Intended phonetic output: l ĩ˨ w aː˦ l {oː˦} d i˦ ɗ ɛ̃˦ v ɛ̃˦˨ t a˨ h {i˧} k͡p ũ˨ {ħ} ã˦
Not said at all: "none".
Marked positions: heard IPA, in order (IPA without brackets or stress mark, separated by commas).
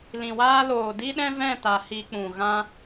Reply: oː˨, i˧, ɣ